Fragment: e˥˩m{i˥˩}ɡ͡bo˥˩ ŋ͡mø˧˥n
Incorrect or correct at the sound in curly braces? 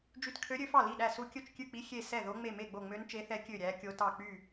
incorrect: e˥˩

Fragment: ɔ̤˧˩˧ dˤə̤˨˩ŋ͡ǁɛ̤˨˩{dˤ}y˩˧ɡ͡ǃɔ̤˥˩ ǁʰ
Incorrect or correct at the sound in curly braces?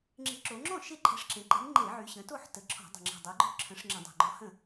correct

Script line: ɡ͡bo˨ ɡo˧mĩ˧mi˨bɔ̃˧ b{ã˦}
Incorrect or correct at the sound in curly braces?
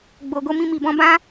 correct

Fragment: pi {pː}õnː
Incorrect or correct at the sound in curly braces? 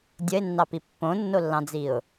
correct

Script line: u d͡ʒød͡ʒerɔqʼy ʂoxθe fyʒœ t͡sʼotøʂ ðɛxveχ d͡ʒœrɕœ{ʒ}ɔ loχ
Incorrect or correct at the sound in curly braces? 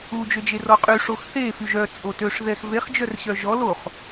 correct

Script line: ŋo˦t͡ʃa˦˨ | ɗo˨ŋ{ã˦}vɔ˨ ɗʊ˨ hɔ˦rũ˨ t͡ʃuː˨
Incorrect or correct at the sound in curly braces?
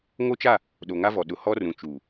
incorrect: a˦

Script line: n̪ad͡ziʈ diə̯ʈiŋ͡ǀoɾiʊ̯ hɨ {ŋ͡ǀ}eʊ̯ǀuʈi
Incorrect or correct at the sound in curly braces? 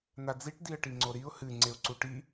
correct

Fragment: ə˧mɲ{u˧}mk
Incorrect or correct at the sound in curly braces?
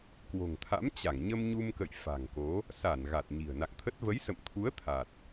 correct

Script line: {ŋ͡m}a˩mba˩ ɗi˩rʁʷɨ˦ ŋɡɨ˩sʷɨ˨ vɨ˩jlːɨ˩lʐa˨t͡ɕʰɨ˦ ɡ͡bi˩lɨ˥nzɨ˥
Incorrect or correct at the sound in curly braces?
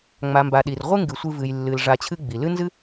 correct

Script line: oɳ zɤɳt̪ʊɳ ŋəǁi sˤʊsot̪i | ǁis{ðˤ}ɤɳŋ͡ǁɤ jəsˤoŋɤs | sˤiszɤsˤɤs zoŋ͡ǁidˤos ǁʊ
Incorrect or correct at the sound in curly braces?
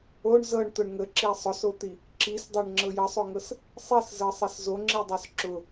incorrect: dˤ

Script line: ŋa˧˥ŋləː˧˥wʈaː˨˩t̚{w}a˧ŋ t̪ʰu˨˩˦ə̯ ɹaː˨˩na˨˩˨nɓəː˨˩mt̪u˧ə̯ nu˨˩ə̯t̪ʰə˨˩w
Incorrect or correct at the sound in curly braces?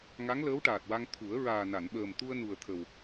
correct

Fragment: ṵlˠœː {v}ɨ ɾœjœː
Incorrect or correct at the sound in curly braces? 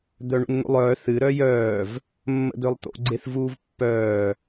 incorrect: θ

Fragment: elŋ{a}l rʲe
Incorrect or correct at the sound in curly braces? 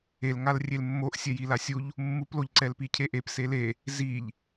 correct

